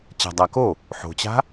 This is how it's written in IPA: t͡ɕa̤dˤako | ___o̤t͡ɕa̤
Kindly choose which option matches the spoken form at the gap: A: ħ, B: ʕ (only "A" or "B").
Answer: A